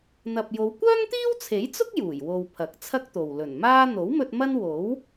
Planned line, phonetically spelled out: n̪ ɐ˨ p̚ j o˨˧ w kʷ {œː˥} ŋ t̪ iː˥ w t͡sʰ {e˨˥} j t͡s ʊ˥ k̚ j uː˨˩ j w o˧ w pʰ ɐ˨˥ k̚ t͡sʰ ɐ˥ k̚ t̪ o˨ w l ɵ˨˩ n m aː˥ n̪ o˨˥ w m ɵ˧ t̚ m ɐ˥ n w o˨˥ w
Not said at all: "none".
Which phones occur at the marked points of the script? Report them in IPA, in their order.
œː˥, e˨˥

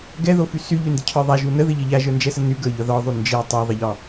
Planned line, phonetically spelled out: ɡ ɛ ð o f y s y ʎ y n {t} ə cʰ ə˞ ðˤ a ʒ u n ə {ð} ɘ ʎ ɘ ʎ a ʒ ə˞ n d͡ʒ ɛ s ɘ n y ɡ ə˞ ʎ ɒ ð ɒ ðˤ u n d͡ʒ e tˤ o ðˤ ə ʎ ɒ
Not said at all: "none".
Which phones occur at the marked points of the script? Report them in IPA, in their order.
d, ð

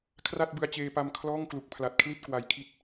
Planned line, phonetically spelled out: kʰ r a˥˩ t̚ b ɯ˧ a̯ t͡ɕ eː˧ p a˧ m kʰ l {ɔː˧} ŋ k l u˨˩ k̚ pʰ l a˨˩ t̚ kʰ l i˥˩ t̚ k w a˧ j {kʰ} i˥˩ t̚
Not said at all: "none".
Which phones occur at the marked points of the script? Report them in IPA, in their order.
ɔː˥˩, kʰ

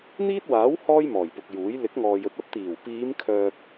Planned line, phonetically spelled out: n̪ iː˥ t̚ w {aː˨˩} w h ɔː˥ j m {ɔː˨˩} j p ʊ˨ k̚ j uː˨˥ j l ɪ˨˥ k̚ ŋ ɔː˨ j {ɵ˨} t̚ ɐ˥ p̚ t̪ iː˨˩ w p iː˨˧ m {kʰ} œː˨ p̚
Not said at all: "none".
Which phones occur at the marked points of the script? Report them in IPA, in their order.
aː˨˥, ɔː˨˩, ɵ˧, kʰ

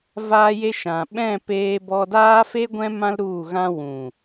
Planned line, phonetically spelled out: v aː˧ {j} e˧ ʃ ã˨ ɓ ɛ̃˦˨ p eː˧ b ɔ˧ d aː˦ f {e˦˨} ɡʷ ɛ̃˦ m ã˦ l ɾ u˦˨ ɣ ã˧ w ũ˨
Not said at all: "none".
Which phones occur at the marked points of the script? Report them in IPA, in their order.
j, e˦

